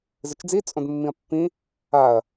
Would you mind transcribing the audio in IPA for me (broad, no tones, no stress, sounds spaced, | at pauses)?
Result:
z ɨ t͡ʃ d͡z i t͡sʼ õ d mː ĩ ɐ̯ pː ĩ | a ɐ̯